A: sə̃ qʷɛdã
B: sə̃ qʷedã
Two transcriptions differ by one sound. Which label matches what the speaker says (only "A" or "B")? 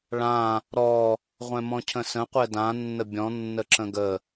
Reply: A